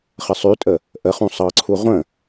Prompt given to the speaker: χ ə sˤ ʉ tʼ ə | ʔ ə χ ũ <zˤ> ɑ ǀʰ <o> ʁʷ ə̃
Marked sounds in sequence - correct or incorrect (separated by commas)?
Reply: incorrect, incorrect